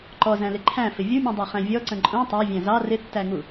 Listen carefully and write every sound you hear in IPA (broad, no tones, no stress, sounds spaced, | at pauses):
ǃ ɔ z æ̃ l ɪ ǃʰ æ̃ f ɪ vʲ u mʲ ũ dˤ æ χ æ̃ vʲ ɔ ǀ ə̃ ǃʼ ũ tˤ æ vʲ æ̃ z ɑ r ɪ tː æ ŋ u